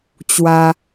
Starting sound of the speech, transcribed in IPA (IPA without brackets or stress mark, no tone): t͡ɕ